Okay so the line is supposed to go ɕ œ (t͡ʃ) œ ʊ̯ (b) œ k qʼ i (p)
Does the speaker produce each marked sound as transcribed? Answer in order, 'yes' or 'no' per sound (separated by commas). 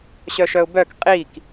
no, yes, no